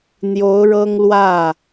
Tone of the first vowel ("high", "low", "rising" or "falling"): rising